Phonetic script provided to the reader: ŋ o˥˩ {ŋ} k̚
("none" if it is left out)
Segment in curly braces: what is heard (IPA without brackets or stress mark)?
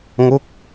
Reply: none